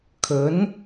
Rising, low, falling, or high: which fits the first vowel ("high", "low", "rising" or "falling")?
rising